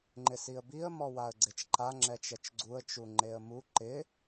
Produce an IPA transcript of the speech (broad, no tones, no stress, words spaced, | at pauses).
ŋ͡ǃɪsiə̯biə̯ mɔwaə̯ɡ͡ǀet͡ʃǃa ŋ͡ǁɛt͡ʃɛt͡ʃɡ͡ǀuə̯ t͡ʃuŋ͡ǃeə̯mu ǃɪ